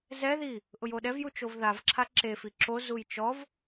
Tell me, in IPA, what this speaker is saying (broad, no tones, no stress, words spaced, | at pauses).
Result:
zɛði | ʔʊjoɗɛvju t͡ʃovðavǁʰa ǁefi ǁozuj t͡ʃɔv